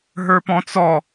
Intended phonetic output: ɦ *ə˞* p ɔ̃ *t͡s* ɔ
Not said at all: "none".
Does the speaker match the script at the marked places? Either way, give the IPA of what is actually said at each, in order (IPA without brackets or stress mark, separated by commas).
ə˞, t͡s